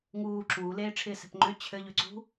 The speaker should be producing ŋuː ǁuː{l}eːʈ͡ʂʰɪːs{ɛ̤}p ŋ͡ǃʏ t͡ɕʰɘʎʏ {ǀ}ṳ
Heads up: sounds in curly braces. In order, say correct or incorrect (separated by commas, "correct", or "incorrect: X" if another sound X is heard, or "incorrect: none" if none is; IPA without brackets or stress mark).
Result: correct, correct, correct